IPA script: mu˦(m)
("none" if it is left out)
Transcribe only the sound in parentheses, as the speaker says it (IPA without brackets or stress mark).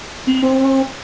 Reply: none